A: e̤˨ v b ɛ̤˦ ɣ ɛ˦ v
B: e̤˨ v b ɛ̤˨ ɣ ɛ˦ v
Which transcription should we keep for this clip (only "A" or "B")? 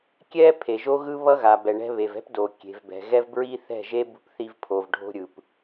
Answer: B